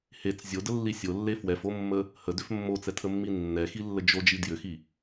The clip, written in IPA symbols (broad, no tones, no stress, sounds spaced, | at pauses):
h e t͡s zʲ o d ə lː i sʲ o lː e f w ɛ f o mː ə | h ə d ʏ f mː o t͡s ɛ tʰ ə mː i nː ɛ x i lː ə d͡ʒ o d͡ʒ i d j ʏ x i